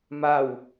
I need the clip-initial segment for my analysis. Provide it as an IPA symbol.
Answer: m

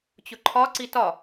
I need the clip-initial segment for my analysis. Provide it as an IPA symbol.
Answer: t͡ɕ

